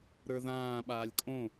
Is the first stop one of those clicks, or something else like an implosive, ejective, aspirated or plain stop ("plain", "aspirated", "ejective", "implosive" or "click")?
implosive